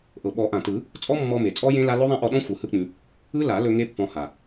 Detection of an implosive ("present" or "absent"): present